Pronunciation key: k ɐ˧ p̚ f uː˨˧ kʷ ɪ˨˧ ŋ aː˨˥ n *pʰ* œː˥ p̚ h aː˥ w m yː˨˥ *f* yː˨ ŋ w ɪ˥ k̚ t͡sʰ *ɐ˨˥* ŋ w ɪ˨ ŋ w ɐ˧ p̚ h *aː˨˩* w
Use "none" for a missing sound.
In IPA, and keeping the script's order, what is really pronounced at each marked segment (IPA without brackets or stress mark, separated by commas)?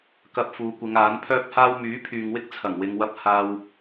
pʰ, pʰ, ɐ˨˩, aː˧